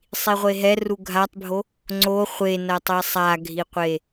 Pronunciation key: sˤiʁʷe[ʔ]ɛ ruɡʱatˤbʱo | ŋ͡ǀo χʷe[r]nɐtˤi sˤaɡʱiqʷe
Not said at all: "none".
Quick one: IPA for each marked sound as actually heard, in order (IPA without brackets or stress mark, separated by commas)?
ɦ, none